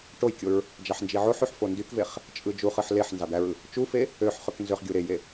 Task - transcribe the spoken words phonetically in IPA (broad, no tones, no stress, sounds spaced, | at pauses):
ʈ o j kʲ o ɹ | d͡ʒ ɑ ħ n d͡ʒ i ʕ o ħ y ħ f o n d y k v e χ | t͡ʃʼ ɯ d͡ʒ u χ ɯ ħ l e ħ n z ɑ d̪ æ ɹ ɯ | t͡ʃ u f e | ø ħ χ ø k n z ø χ ɡʲ u ɾ e j e